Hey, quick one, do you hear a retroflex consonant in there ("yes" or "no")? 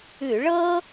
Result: yes